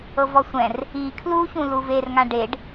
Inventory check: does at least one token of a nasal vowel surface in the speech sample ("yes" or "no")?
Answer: yes